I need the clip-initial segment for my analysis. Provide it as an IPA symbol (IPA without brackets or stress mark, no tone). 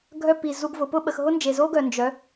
ɡʱ